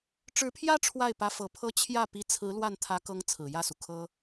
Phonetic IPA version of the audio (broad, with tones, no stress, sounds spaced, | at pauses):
ʈ͡ʂ ɻ̩˧˥ pʰ j ä˥ ʈ͡ʂʰ w a˥˩ ɪ̯ p ä˧˥ f ɤ˨˩ pʰ ɤ˥ t͡ɕʰ j ä˥˩ p i˧˥ t͡sʰ ɹ̩˧˥ l w a˥˩ n t̪ʰ ä˧˥ k ɤ˧˥ ŋ t͡sʰ ɹ̩˨˩ j ä˥˩ s u˩ kʰ ɤ˥